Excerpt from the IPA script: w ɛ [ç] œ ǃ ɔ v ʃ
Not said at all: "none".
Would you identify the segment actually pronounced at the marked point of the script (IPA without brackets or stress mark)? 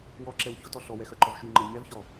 x